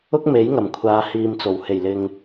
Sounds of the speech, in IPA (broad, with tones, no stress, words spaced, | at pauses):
ʊ˥k̚me˨˥jŋɐ˨˩mkʷʰaː˨˧ hiː˧mt͡so˨˩w he˨˩jlɪ˨ŋ